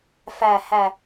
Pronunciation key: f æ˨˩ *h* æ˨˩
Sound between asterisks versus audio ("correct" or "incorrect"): correct